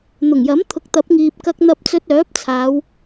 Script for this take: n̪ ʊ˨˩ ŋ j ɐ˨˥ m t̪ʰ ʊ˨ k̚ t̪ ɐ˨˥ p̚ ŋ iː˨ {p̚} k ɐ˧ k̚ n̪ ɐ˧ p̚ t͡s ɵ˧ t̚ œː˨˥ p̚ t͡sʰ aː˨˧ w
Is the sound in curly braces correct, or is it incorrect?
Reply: correct